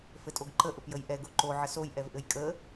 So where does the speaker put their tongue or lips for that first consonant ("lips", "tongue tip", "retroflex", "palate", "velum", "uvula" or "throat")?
lips